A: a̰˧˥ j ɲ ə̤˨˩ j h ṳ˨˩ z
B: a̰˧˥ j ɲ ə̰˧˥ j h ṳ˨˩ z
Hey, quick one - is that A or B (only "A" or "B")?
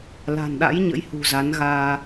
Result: B